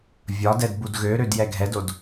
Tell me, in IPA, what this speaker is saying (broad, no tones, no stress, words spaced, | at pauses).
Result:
vʲɒd ɛdbudɣøɾød jɛɡʱɛdod